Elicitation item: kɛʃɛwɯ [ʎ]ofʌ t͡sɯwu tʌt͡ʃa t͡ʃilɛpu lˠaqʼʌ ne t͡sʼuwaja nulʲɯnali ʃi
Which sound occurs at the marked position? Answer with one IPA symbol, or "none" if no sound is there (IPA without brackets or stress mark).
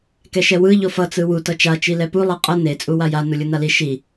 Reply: ʎ